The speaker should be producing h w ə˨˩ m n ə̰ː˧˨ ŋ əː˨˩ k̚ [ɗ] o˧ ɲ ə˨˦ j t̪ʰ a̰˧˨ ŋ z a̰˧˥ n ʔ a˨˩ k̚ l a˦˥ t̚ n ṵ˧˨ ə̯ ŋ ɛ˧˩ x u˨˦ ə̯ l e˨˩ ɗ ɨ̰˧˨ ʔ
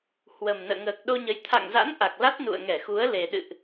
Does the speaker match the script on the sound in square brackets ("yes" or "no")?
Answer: yes